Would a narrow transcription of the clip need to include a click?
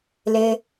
no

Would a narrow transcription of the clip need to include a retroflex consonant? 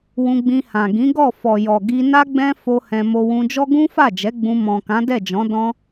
no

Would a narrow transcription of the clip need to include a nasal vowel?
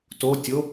no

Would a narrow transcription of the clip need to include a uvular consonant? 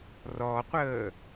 yes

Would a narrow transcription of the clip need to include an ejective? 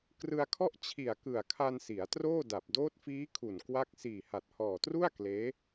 no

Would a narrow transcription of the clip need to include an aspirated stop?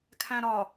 yes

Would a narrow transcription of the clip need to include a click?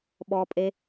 no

